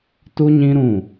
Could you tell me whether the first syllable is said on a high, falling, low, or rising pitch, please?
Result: high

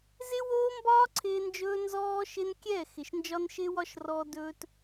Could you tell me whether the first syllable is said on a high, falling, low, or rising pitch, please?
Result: high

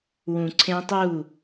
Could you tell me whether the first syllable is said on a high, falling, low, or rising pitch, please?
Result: low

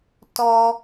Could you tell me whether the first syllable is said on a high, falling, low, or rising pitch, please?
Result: high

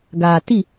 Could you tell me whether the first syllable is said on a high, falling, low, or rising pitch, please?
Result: low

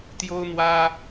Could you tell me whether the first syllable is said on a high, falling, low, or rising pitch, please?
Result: high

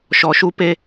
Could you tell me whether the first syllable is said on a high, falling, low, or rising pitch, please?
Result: low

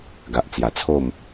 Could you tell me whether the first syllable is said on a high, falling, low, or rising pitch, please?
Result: low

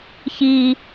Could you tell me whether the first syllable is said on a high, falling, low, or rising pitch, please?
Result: low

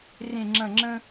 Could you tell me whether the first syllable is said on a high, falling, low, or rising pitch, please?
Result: low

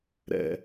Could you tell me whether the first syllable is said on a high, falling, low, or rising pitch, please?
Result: low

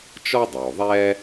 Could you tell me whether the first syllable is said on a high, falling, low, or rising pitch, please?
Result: high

